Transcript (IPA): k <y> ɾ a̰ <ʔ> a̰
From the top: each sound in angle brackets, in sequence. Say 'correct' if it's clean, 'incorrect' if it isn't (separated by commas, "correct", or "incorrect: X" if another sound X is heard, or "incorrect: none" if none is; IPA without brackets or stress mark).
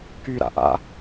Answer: correct, correct